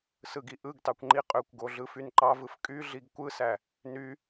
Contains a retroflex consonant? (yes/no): no